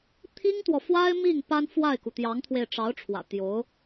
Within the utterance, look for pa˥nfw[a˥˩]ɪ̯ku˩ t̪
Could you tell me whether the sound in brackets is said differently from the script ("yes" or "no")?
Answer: no